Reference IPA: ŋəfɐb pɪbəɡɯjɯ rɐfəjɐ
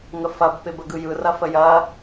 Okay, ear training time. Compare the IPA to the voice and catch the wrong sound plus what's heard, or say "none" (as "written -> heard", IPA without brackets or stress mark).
none